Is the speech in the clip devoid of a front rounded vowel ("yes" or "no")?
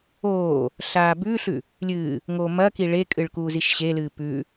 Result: yes